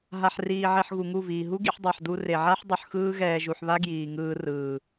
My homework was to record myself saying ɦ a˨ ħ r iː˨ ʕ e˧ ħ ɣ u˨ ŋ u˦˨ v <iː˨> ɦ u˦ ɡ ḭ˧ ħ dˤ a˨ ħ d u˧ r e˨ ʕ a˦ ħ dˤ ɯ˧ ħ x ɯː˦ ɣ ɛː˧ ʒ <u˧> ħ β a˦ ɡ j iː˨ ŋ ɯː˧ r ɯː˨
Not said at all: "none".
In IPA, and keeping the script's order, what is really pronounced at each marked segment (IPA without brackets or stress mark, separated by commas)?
iː˨, u˧